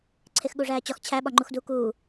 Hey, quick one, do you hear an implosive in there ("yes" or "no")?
yes